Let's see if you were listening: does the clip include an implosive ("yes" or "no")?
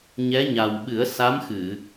yes